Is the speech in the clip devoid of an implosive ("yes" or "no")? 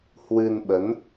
no